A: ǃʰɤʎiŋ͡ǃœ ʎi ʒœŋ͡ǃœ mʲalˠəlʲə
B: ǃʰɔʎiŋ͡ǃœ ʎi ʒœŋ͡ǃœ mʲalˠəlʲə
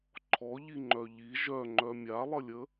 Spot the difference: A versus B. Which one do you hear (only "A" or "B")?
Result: B